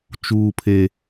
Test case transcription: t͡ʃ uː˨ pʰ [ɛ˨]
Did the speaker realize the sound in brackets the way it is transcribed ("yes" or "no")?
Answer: no